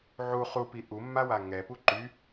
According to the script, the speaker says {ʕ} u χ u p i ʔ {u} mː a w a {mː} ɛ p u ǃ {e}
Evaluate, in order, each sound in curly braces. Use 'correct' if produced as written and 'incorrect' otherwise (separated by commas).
correct, correct, incorrect, incorrect